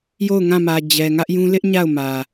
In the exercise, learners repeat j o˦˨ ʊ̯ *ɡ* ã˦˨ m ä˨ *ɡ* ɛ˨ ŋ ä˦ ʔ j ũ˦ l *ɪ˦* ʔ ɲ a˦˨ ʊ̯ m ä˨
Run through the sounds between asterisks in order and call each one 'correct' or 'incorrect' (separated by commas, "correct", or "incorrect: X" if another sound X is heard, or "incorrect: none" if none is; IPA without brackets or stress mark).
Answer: incorrect: ŋ, incorrect: d͡ʑ, correct